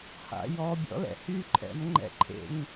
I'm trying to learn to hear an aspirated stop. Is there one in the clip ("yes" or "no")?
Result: yes